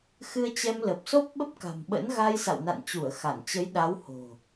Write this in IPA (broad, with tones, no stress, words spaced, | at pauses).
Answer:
xɨ˧ə̯t͡ɕɛ˧mlə˨˩p̚ so˦˥p̚ɓə˦˥p̚ka̤˨˩mɓə̰˧˥n ɣa˧jsa̰˧˨wna̰˧˨nt͡ɕu˧˩ə̯ xa˧˩nt͡ɕə˨˦jɗa˨˦who̤˨˩